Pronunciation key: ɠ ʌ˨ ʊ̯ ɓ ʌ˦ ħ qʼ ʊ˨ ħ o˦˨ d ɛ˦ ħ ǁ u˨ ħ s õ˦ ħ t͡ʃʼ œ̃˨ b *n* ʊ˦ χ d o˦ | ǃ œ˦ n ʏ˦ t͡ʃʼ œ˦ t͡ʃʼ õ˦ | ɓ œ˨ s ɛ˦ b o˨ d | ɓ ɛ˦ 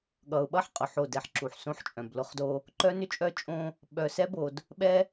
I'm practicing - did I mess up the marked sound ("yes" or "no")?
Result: yes